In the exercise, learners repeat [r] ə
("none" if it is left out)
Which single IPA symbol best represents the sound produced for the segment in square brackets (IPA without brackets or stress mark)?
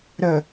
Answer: ɾ